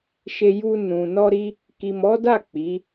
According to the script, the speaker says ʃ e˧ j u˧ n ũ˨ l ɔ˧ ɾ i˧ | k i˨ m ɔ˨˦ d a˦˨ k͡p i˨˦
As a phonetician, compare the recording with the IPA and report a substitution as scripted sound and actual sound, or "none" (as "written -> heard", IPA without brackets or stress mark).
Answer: l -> n